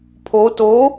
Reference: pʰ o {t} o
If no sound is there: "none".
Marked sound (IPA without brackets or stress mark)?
t